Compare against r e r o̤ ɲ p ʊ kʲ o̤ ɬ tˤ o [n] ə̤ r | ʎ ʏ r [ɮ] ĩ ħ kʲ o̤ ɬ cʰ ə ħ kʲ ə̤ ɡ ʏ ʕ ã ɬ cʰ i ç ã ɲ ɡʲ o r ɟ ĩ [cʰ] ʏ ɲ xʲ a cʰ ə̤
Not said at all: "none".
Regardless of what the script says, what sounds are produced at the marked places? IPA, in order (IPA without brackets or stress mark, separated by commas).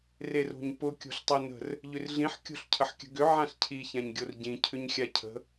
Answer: n, ɮ, cʰ